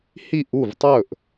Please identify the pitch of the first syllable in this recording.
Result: falling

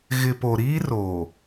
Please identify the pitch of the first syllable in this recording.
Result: low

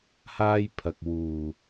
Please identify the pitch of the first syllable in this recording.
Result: high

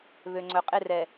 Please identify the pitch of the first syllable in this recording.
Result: low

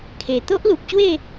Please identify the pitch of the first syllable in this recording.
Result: low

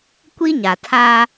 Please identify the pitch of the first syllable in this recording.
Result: high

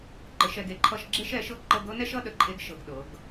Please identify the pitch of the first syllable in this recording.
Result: rising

